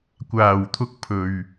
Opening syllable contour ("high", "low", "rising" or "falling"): low